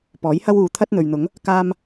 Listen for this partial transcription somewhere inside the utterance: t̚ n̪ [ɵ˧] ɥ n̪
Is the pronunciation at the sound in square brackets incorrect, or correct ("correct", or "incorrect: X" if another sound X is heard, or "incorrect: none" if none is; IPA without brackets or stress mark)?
incorrect: ɵ˨